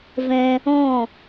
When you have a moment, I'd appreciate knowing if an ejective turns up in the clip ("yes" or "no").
no